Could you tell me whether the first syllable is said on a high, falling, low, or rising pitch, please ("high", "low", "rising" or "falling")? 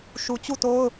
low